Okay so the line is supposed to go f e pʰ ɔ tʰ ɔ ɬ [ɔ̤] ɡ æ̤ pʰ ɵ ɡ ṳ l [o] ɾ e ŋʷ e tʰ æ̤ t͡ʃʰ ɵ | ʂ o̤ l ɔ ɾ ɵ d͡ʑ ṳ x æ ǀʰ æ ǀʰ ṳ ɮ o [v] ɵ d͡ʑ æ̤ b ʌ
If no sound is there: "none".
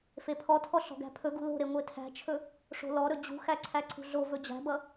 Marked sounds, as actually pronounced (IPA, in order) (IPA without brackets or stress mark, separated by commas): ɔ̤, o̤, v